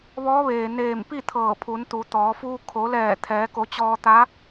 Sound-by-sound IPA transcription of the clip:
ʋɔː˧˥ʋeː˩neː˧˩mpi˥˨ t̪ʰɤː˧˩pʰu˩˧nt̪u˩˧t̪ɔː˩˧ fuː˧ kʰo˩˧lɛː˧˩ t̪ʰɛː˩˧ko˩˧t͡ɕɔː˧t̪a˧˥

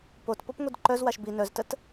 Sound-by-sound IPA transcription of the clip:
pot popŋʷidǃœzwaʃ bi nœztət

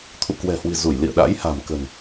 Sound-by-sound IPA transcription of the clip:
t̪ʰṵ˧˨kwɛ̤˨˩hwi̤˨˩ zu˧˩j lḭ˧˨ə̯ɗa̰˧˥j ha̤˨˩mkə̤˨˩n

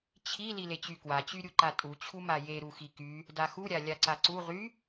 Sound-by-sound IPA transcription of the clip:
t͡ɕʰi lilet͡ɕykwa t͡ɕyɾʲuǃatʼu t͡ɕʰumaje ɾuxiky | daxu ɾʲalʲaǀaǀu ʁy

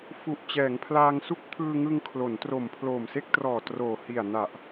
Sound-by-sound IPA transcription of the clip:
fu˨˩ʔ t͡ɕɛː˩˦ŋpʰlaː˧ŋsu˥˩k̚ pʰɯː˧ŋɯ˧ŋkʰlo˩˦n tro˨˩mpʰloː˨˩mse˥˩k̚trɔː˨˩ troː˨˩hi˨˩a̯ na˨˩ʔ

